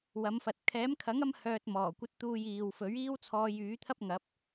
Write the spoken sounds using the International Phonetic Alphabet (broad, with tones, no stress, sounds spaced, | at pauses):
w ɐ˨˧ m f ɐ˨ t̚ kʰ ɛː˨˥ m kʰ ɐ˨˥ ŋ ɐ˥ m h œː˧ t̚ m ɔː˨˩ kʷ ɐ˨˥ t̚ t̪ uː˨ j iː˨ w f ɵ˨˥ ɥ iː˥ w t͡sʰ ɔː˧ j yː˨˥ t̪ʰ ɐ˥ p̚ ŋ ɐ˨˥ p̚